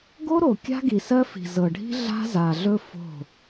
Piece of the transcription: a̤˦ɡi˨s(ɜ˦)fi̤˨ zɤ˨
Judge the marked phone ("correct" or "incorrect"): correct